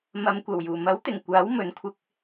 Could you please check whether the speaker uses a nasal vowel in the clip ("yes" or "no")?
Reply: no